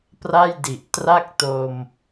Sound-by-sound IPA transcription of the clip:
p r a˥˩ j d i˨˩ ʔ t r a˥˩ k̚ t o˧ m

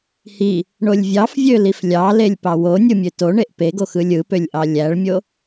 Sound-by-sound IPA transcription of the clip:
h i | ɳ o lʲ vʲ ɑ f vʲ ø l i f lʲ ɑ l e lʲ p ɑ w o nʲ ɯ mʲ ø t o ɳ e ʔ p e ɡ o x ɯ lʲ ɯ p ø lʲ ʔ ɑ lʲ æ ɭ mʲ o

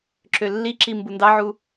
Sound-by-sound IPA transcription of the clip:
ǁ ø lː i ǁ i m b u n d ɑ ʕ u

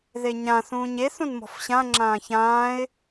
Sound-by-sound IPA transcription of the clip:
ð e ɲ ã θ ũː ɲ e θ ũ n m ɔ̤ f ɕ ã ŋ͡ǁ ãː ç ãː ɪ̯

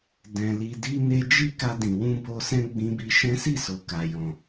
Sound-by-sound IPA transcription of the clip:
d ɛ̃˧ l i˧ d i˦ n e˦ d͡ʒ i˦ k a˧ d ĩ˨ w ũ˧ b o˧ s ɛ̃˦ ɡ͡b ĩ˧ b i˧ ʃ ɛ̃˦ s i˦˨ s o˨ k a˨ j ɔ̃˨

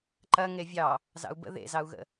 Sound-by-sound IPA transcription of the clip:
ǃ ɐ ŋ e vʲ ɑ | z ɑ̰ u̯ b ə̰ ð ḛ z ɑ u̯ ɣ ə̰

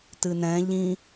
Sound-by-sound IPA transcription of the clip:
t ɨ n ɛ̃ ʎ ĩ

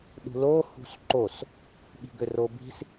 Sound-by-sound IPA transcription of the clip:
ɗ ṳ l o h ṳ s ǃ o s | ɓ i̤ ɡ ø r o b i̤ s

